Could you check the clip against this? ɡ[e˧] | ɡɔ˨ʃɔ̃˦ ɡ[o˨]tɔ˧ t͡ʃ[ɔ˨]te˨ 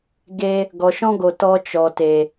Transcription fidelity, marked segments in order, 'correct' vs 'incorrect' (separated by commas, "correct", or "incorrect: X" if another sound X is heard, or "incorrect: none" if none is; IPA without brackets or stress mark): correct, correct, correct